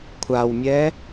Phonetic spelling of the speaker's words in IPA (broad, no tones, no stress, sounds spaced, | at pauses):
kʷʰ a w mʲ ɛ